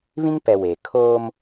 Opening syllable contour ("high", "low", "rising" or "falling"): high